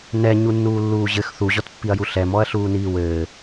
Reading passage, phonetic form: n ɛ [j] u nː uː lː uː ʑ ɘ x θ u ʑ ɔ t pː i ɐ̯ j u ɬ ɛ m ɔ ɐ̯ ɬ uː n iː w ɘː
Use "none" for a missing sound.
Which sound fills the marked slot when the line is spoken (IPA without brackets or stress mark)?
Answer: ɲ